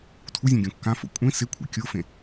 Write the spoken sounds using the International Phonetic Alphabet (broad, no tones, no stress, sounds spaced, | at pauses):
tʰ u zʲ ẽ ɡʲ õ kː ã f o̰ kʷʼ ĩ s ɪ kʷʰ ḭ kʲ o f ẽ